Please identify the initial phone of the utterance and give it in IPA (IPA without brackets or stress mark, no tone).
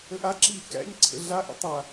ə